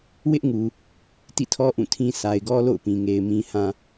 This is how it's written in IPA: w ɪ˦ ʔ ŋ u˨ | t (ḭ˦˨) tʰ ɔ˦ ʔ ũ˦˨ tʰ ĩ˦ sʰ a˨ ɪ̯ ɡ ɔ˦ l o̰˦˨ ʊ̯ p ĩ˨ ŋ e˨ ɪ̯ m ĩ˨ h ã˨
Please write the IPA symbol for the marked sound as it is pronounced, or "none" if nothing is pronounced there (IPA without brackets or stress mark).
ḭ˦˨